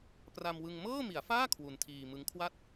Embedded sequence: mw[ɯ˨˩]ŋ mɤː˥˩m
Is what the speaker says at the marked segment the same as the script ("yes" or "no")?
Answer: no